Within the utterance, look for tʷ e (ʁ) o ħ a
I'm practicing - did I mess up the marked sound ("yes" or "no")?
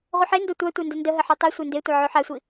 yes